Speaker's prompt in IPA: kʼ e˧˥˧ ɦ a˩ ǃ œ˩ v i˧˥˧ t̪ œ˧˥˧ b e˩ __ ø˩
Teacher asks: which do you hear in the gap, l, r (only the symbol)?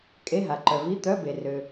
r